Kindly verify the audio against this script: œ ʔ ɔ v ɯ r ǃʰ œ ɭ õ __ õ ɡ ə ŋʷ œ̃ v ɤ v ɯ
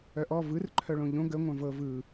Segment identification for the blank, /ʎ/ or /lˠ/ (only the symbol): ʎ